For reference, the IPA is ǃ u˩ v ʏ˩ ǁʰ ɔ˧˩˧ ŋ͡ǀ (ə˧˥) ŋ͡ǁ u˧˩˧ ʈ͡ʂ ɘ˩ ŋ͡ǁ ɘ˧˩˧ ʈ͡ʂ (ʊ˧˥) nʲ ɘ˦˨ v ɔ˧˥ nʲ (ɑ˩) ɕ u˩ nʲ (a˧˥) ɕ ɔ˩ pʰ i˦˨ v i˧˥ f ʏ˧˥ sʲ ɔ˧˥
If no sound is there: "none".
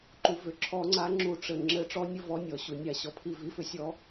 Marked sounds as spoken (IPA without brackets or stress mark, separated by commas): a˧˥, ɔ˧˥, ɔ˩, a˧˩˧